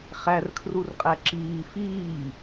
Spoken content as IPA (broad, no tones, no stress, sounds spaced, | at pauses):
χ æ r kʰ r u r qʼ æ ǁ iː f iː